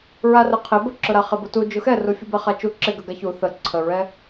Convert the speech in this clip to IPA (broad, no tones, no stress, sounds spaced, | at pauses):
ɹ a r ə qʰ ɪ b ə ǁ ʊ ɾ a χ ɪ b ʊ t u d͡ʒ ʊ x ɛ r u fʲ u b ɛ χ a t͡ʃ u ǁ ɪ ɡ ə ɡ a ç u θ ə ǀʰ ə ɹ ɛ